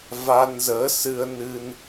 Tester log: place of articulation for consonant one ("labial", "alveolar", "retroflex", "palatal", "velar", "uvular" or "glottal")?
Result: labial